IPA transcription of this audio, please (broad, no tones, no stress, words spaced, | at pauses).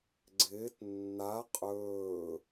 ɡ͡ǀɪːt nːa qʼɵː